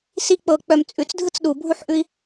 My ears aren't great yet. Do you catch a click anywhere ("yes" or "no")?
no